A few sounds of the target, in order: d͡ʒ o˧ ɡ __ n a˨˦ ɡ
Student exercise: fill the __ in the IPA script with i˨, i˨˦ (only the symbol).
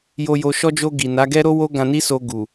i˨